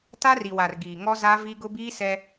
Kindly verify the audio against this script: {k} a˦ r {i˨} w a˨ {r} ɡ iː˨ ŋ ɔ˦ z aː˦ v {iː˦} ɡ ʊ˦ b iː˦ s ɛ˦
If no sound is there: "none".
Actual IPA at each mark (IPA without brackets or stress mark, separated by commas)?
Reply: t, i˨, r, i˦